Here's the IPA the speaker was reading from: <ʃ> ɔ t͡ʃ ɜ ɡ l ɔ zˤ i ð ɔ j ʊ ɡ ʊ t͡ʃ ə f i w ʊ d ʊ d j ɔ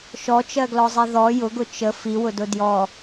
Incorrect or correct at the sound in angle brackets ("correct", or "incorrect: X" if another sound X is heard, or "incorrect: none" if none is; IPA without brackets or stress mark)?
correct